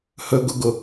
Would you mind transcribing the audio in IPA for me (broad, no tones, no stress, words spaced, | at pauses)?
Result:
hɵɡʊɡʊ